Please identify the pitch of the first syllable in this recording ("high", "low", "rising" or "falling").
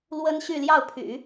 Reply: high